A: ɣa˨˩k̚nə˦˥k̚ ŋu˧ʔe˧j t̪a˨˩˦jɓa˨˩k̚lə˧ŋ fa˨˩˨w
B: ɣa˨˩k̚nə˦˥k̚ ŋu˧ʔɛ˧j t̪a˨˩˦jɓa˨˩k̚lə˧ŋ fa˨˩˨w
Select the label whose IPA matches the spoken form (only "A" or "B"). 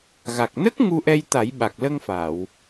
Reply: B